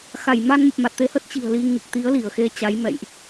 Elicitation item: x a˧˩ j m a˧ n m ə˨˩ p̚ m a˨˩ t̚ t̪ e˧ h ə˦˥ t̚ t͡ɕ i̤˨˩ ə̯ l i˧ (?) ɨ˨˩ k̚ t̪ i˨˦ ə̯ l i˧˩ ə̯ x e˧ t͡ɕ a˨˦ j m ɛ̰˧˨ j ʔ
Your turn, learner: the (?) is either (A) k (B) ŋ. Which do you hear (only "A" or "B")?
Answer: B